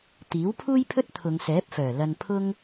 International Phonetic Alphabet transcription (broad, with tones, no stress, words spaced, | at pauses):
t̪iː˨˥wpʰuː˥jpʰɵ˥t̚ t̪ʰʊ˨˧ŋsɛː˨˥p̚fœː˨˩ lɐ˧npʰʊ˥ŋ